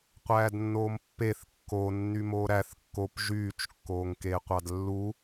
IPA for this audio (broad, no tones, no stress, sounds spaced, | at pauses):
qʷ æː d nː oː m pː e θ kː o nː y m o ɾ æ θ kː o p ʒ yː t͡ʃ kː oː ŋ k eː qʷ ɑ d lː u